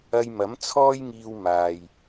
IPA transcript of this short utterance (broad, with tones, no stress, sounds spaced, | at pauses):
ɐ˧ j m ɐ˨˥ m t͡sʰ ɔː˥ j ŋ iː˧ w m aː˨ j